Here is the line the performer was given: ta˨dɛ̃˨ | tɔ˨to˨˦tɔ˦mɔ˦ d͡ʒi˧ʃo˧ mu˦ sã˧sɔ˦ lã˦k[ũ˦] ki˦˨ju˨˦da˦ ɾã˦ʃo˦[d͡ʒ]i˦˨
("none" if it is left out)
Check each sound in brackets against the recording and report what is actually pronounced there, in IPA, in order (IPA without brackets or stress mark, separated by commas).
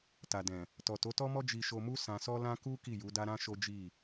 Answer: u˦, d͡ʒ